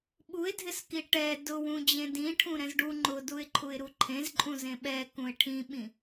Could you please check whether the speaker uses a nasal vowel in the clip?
yes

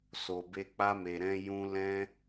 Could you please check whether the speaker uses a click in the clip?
no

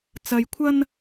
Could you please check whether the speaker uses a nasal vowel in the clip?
no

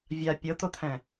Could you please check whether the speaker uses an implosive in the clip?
no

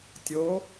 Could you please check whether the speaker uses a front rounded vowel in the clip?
no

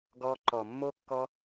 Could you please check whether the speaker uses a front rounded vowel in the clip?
no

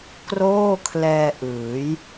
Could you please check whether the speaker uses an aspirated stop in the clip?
yes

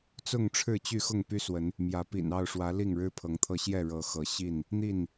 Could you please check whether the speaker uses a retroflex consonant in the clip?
yes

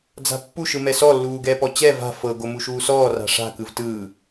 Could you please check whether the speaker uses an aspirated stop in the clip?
no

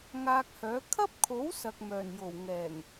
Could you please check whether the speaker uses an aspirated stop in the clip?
yes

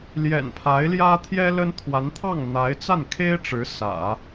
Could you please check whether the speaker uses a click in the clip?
no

